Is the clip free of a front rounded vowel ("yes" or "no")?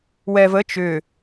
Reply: no